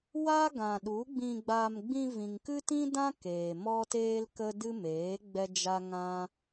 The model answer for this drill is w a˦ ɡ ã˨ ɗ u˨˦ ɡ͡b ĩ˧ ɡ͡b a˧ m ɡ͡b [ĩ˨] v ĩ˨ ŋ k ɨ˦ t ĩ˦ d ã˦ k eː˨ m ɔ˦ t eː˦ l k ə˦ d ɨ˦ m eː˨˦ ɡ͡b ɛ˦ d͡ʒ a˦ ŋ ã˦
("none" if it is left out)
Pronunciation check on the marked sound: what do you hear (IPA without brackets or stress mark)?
ĩ˧